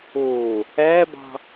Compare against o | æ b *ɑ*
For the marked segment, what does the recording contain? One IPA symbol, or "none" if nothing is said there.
ɑ̤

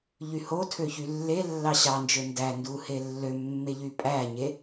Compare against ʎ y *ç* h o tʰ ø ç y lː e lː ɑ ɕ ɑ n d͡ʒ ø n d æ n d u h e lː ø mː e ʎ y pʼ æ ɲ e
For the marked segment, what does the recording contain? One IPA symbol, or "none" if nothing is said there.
none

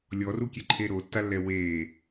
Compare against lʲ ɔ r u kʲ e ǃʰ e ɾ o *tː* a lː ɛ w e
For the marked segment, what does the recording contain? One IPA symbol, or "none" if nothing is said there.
tː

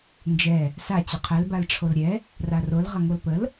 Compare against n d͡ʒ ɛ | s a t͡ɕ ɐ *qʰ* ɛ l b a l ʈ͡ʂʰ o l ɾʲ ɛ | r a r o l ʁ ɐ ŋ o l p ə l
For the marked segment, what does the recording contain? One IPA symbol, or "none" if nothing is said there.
qʰ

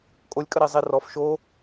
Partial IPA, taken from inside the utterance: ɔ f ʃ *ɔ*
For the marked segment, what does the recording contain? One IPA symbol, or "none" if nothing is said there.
o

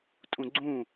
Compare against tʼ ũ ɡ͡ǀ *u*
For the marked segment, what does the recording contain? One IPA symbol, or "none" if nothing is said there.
ũ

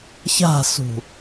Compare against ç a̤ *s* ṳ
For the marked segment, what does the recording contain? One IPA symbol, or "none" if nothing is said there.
s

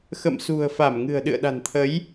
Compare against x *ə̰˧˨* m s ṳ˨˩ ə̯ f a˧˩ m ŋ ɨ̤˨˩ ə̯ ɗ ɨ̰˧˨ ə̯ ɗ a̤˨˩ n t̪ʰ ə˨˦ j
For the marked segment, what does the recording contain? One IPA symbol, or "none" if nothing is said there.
ə̰˧˨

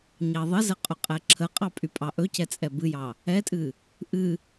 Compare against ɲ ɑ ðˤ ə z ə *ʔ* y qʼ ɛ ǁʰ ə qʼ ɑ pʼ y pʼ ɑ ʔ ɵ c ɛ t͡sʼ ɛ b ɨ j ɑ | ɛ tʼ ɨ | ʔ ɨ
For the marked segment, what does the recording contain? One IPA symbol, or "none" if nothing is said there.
qʼ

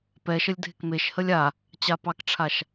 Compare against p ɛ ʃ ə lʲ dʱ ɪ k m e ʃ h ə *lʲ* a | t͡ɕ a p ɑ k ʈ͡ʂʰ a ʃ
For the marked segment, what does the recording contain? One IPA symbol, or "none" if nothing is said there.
lʲ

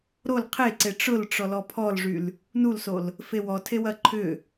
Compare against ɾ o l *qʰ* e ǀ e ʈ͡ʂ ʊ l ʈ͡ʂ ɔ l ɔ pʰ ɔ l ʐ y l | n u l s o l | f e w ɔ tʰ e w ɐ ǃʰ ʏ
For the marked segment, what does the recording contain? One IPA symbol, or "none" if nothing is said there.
qʰ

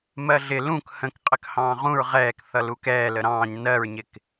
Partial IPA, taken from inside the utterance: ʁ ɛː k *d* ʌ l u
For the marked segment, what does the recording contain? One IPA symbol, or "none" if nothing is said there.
θ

